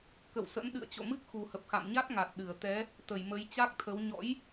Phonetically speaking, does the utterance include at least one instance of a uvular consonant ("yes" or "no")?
no